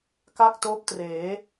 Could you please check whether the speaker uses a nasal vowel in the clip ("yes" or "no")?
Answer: no